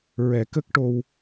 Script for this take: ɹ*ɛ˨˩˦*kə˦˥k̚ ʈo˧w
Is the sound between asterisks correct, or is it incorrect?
correct